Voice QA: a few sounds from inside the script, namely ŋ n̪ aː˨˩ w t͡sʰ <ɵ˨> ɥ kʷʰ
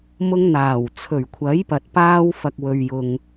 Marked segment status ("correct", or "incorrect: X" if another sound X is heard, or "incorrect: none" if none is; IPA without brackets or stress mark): incorrect: ɵ˨˩